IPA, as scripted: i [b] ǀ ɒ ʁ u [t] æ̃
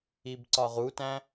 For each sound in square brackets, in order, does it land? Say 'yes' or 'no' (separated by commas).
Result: yes, yes